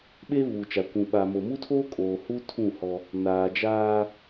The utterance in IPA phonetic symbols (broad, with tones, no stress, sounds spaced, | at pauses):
ɓ eː˦ β uː˨ t͡ʃ a˨ kʷ ũ˨ ɓ a˨ m o˨ m u˦ tʰ oː˦ kʼ oː˨ h u˦ tʰ ũ˦˨ h ɔ˦ | n aː˨ d͡ʒ aː˦